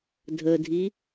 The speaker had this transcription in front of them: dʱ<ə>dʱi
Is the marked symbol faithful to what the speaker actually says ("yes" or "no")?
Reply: yes